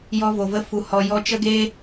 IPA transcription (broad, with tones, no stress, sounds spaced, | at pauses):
j ɔ˧ v o˨ v ə˧ f u˨ h ɔ˨ j ɔ˧ t͡ʃ ə˦ ɡ eː˦